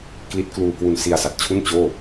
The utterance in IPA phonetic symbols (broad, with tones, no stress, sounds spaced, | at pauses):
k l i˦˥ t̚ k l uː˧ k w u˧ n s i˧ a̯ s a˨˩ t̚ t͡ɕʰ u˥˩ n t͡ɕ oː˥˩